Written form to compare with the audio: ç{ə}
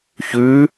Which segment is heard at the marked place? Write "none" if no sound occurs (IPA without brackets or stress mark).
ʉ